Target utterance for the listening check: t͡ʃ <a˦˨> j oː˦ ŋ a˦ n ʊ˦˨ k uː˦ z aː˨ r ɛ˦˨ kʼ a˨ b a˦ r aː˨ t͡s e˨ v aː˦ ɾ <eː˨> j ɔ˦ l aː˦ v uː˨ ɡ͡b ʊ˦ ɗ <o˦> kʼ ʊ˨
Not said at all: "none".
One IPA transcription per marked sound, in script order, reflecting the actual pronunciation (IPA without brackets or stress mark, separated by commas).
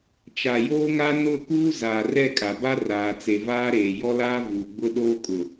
a˨, eː˨, oː˦